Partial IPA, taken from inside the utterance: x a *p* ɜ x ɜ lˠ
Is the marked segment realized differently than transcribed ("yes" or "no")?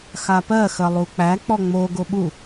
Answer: no